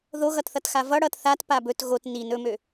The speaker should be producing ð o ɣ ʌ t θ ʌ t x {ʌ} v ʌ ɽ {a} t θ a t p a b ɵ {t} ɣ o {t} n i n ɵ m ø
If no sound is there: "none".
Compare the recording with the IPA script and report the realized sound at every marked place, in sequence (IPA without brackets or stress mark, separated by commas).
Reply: a, ʌ, t, t